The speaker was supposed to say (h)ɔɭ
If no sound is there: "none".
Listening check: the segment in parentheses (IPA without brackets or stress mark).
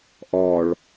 ʔ